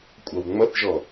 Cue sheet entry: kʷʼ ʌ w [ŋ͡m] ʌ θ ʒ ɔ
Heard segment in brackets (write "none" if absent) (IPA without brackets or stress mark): ŋ͡m